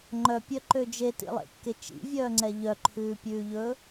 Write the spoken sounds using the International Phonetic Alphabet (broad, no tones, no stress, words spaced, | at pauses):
ŋ͡ǃœpʲœǃø d͡ʒetḭlˠḛkːe t͡ʃḭvʲœːŋ͡ǀɛ ʎœǃʰʉːpʲʉːʎɵ